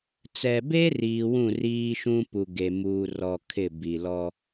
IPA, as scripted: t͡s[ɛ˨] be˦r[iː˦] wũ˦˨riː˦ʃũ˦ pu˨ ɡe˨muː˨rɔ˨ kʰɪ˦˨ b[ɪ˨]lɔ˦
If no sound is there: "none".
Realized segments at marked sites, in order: ɛ˨, iː˨, i˨

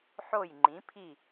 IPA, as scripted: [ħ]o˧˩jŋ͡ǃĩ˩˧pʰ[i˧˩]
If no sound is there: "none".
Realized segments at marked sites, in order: ħ, i˧˩

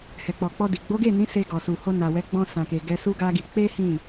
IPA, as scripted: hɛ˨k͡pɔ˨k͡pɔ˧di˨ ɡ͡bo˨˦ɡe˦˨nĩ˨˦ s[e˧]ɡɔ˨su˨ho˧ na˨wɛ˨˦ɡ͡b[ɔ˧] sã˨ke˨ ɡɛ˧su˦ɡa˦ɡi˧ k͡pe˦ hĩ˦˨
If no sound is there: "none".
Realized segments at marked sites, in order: e˧, ɔ̃˧

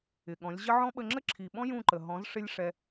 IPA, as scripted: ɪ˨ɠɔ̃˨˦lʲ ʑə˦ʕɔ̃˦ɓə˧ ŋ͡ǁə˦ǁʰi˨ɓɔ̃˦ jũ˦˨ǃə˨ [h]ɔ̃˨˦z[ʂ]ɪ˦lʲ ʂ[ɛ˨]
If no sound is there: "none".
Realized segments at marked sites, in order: ɦ, ʂ, ɛ˦

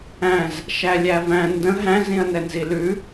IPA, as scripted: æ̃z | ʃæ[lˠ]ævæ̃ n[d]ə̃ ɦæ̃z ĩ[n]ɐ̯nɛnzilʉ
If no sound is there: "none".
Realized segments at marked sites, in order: lʲ, d, none

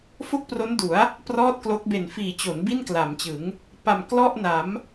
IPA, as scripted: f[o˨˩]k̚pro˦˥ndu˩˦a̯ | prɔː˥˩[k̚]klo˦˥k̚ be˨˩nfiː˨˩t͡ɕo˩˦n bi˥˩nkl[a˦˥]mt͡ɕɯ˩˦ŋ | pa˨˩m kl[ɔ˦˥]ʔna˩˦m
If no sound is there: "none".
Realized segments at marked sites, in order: o˥˩, t̚, a˩˦, ɔ˥˩

